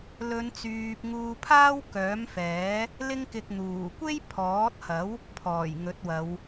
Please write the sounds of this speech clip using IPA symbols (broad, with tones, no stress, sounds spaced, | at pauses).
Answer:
l ɵ˨˧ n t͡s yː˨ p̚ ŋ uː˧ pʰ aː˥ w k œː˨˥ m f ɛː˨˥ | l ɪ˥ ŋ k ɪ˧ k̚ n̪ uː˨˩ kʷ e˥ j pʰ ɔː˨˥ t̚ h ɐ˨˥ w | pʰ ɔː˨˩ j ŋ ɵ˨˥ t̚ w ɐ˨˧ w